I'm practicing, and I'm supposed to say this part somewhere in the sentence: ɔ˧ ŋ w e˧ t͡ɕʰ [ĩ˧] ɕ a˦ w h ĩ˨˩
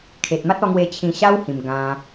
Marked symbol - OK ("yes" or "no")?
yes